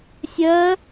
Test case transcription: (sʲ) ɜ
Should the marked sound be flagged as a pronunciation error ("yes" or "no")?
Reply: no